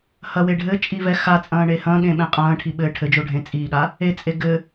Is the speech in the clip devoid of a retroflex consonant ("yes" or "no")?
no